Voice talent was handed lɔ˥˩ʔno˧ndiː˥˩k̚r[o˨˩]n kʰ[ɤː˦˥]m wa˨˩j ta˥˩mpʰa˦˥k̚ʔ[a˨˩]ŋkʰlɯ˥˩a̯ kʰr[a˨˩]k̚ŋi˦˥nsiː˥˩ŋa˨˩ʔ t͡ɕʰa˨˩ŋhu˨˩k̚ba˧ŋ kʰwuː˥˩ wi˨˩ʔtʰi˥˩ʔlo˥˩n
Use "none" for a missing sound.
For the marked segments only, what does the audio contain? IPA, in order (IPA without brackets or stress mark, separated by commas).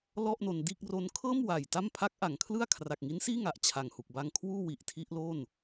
o˦˥, ɤː˥˩, a˨˩, a˨˩